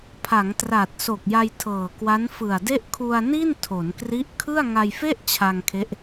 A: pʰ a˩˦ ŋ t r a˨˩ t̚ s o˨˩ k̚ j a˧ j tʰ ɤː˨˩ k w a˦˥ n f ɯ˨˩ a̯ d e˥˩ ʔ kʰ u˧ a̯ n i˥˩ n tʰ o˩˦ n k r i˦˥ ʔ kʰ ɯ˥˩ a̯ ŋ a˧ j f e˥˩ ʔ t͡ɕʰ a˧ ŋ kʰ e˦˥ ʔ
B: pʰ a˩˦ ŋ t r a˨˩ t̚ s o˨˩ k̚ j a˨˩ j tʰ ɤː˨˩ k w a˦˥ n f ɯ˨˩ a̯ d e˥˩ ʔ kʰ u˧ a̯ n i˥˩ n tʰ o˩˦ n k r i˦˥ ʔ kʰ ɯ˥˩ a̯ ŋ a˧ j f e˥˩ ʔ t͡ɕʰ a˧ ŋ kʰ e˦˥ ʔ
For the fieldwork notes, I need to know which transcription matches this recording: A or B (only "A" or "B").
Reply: A